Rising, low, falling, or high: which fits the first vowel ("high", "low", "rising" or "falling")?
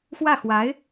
falling